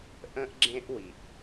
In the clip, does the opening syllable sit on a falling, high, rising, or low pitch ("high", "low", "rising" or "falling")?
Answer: high